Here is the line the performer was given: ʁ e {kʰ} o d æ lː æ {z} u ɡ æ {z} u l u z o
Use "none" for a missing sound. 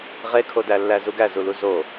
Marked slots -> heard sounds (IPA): kʰ, z, z

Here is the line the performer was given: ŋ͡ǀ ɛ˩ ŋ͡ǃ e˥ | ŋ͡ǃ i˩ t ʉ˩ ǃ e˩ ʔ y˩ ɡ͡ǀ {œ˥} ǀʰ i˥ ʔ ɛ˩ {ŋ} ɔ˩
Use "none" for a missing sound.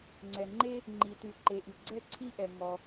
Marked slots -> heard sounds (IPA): ɛ˥, ŋ

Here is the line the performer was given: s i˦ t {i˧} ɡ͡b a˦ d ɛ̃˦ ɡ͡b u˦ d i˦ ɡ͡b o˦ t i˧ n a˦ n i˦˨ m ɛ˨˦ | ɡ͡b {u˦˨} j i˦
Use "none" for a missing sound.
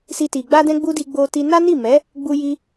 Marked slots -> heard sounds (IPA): i˧, u˦

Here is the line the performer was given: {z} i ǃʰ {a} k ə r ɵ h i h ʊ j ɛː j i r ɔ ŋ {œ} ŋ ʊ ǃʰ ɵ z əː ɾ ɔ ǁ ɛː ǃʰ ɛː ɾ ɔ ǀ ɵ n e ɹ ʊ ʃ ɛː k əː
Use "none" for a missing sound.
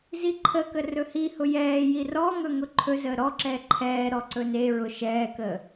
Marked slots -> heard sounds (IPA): z, ə, ɵ

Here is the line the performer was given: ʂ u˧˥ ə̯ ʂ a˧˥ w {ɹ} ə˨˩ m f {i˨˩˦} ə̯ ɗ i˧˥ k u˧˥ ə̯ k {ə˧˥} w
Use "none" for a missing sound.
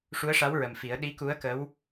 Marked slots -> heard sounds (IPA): ɹ, i˨˩˦, ə˧˥

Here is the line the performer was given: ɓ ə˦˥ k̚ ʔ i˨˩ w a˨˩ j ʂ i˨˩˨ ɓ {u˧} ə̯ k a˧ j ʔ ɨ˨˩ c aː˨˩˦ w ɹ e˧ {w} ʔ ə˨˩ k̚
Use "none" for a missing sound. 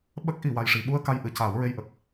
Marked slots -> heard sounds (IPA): u˧, j

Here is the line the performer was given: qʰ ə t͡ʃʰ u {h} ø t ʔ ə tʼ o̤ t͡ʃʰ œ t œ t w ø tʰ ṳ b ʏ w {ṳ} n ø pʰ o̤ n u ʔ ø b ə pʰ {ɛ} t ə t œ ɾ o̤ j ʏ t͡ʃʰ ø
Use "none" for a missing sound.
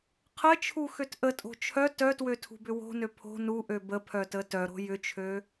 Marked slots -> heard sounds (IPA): x, o̤, œ

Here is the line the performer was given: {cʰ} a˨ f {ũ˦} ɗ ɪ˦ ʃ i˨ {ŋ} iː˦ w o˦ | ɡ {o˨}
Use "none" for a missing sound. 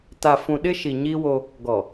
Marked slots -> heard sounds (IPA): t, ũ˨, ɲ, ɔ˨

